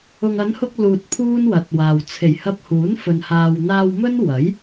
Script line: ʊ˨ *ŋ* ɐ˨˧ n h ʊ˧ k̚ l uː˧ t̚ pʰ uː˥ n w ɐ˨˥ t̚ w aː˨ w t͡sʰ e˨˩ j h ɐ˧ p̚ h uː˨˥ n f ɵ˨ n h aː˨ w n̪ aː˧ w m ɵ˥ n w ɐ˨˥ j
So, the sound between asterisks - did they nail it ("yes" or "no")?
yes